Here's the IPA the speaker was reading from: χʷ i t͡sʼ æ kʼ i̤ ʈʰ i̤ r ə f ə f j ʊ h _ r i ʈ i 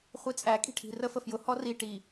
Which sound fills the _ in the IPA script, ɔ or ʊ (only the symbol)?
ɔ